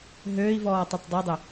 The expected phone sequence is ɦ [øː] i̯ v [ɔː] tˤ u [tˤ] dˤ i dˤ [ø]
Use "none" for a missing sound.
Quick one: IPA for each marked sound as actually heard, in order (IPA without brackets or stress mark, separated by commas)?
øː, ɔː, tˤ, ø